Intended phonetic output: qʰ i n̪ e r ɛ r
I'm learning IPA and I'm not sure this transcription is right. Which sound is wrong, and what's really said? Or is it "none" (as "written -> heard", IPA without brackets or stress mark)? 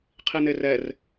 none